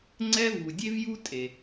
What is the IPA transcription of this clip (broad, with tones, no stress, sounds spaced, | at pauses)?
ŋ͡ǀ ɛ˧ v u˩ dʲ e˥ v j u˥ tʼ e˩